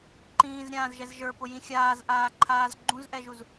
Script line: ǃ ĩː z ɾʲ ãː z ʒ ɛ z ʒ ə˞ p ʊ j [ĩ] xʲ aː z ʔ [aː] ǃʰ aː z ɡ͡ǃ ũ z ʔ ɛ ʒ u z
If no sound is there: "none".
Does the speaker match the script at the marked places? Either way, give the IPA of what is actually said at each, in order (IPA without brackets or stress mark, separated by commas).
ĩ, aː